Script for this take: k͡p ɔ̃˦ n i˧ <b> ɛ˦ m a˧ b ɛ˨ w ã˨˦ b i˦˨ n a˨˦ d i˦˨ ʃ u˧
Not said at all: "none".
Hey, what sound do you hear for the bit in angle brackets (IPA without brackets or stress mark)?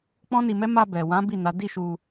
m